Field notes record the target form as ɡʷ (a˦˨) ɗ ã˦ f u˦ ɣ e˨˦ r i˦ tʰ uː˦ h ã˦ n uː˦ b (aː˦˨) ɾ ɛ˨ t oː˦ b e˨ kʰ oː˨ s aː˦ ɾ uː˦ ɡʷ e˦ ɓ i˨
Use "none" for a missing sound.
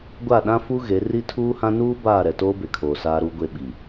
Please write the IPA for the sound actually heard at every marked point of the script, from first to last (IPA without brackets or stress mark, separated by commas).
a˦˨, aː˦˨